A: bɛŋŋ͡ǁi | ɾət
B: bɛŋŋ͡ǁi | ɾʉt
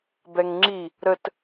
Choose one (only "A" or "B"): A